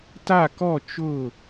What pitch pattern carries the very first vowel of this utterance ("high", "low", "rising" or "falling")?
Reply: falling